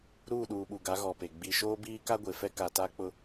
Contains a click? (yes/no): no